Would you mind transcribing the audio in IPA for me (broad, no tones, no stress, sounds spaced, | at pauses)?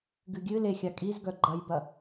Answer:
ɡ ɨ ɡʲ ɨ l e xʲ a kʼ i z ɡ œ ɡ͡ǃ ɐ j b ɐ